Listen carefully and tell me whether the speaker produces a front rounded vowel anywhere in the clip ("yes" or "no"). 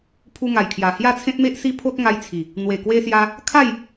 no